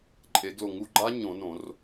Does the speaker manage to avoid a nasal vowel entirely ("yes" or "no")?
no